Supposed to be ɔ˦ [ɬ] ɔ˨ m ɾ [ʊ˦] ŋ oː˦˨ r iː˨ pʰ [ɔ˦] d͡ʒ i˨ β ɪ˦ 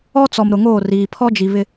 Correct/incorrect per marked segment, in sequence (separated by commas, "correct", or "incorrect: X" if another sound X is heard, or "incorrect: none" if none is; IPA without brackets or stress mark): incorrect: t͡s, incorrect: ʊ˨, correct